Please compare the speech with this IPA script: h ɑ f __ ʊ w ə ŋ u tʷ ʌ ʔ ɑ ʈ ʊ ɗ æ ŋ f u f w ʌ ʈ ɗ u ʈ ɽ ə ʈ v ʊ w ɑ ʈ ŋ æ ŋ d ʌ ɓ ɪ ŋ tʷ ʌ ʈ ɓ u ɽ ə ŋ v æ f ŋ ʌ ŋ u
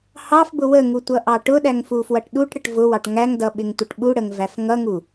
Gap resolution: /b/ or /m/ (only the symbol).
b